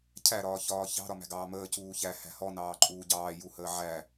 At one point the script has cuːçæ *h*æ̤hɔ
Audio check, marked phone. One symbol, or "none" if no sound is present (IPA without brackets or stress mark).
h